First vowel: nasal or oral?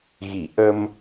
oral